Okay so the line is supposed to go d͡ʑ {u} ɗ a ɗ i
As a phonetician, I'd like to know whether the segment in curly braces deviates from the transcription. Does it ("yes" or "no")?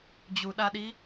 no